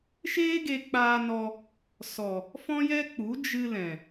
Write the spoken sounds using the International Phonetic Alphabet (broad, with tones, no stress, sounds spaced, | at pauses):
ʃ eː˦ ɡ e˧ k͡p aː˧ n ɔ˧ | s ɔ˨ | f ɔ̃˦ j ɛ˦ k͡p u˨˦ d͡ʒ ɨ˧ l ɛ̃˨